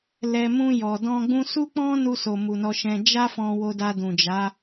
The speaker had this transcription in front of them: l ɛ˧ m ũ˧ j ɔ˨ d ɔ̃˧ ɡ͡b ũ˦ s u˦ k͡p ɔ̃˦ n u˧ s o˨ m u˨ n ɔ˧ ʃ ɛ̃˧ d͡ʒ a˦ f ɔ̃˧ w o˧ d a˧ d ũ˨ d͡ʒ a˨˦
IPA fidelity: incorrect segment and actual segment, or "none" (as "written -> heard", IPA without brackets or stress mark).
none